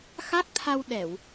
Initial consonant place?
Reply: velar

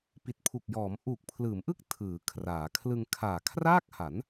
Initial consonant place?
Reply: labial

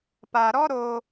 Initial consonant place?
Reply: labial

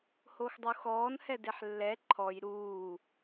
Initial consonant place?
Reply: glottal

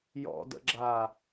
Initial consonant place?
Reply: palatal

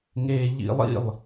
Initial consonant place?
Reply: velar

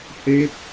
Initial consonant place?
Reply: glottal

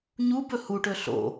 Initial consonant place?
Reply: palatal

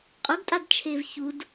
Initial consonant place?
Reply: uvular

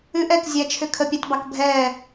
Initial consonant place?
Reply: glottal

